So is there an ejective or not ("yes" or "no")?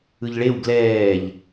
no